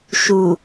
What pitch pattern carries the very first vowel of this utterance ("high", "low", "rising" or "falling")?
low